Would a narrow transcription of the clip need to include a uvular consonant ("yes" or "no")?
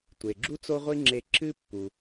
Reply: yes